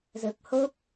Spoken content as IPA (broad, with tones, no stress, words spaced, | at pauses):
zə˨˩p̚ho˦˥k̚